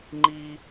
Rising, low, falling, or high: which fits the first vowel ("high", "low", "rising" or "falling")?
high